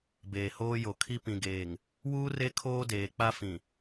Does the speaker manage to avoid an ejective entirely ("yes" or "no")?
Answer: yes